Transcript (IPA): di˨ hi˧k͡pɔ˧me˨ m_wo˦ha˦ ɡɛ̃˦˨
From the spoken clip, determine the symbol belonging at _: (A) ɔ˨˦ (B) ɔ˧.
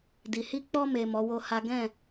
A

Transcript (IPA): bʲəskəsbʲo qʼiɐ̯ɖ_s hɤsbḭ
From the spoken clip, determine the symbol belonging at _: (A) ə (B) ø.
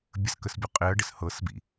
A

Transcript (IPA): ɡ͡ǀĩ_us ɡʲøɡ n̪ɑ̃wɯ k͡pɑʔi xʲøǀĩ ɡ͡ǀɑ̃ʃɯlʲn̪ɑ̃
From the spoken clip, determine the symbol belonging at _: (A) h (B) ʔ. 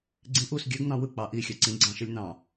B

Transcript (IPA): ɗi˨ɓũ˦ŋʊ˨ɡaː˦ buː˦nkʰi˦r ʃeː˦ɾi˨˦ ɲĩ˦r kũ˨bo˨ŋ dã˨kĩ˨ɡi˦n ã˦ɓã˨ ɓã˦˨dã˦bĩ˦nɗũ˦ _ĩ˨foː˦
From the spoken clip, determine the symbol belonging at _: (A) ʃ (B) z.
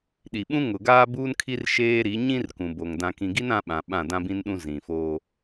B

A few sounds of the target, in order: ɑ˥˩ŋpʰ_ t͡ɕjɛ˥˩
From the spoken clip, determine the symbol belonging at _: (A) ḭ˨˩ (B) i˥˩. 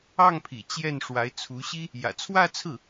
A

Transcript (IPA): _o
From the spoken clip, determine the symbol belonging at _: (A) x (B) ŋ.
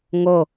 B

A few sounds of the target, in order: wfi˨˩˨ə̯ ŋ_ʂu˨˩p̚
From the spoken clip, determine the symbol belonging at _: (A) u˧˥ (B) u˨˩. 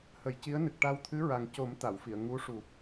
A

